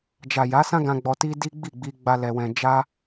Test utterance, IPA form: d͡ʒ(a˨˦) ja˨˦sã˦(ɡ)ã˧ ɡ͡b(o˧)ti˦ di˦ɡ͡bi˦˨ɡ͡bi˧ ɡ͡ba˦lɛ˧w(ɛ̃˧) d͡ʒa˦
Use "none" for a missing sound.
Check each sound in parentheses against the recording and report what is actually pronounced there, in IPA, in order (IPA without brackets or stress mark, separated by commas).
a˨, ɡ, ɔ˧, ɛ̃˧